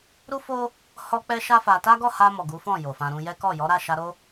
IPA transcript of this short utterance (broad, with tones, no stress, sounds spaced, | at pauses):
ɾ u˦ f o˦ | h ɔ˦ k͡p ɛ˦ ʃ a˦ f a˧ t a˦ ɡ ɔ˦˨ h a˧ m ɔ˨ ɡ u˨˦ f ɔ̃˦˨ j o˨ f ã˧ ɾ ũ˦ j ɛ˦ k ɔ˦˨ j ɔ˨˦ ɾ a˦˨ ʃ a˧ ɾ o˦